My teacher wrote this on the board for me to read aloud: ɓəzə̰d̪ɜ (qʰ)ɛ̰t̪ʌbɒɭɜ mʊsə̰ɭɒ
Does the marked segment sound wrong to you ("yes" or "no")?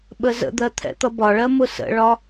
yes